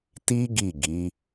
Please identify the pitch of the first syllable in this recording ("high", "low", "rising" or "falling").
high